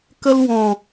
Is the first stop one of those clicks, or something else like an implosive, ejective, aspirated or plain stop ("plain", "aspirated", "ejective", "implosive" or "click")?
plain